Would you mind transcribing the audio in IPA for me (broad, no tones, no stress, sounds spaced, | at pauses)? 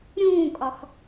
ɾʲ ũː kʼ ɒ x